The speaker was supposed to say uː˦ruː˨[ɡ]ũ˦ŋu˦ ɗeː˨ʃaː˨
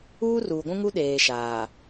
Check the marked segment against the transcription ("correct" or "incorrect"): incorrect